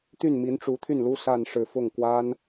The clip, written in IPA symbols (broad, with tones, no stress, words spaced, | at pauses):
t̪y˥˩nmi˧˥nʈ͡ʂu˧˥t̪ʰy˥˩n lu˥sa˥˧n ʂɻ̩˥˧ fʊ˥˩ŋ kwa˥n